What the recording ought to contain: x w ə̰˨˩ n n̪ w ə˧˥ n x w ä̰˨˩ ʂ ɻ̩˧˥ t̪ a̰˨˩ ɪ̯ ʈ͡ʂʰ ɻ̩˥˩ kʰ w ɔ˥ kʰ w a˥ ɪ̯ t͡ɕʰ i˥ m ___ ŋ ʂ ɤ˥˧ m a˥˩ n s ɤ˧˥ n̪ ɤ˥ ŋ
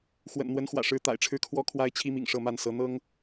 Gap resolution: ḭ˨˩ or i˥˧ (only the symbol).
ḭ˨˩